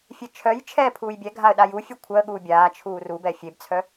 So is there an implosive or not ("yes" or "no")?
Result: yes